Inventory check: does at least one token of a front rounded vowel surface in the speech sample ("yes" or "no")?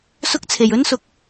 no